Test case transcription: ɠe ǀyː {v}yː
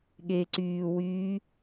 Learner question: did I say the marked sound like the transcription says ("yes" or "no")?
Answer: no